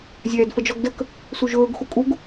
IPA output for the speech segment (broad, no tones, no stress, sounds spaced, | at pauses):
zʲ ɛː d f ə d͡ʒ ɔ ɡ d ə k | s u ʒ ɵː ɡ x u kʼ u ɡ